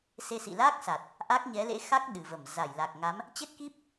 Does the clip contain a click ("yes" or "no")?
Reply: no